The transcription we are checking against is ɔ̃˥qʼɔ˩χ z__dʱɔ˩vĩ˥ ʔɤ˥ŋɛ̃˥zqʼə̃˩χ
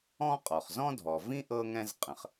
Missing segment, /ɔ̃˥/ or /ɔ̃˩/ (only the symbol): ɔ̃˥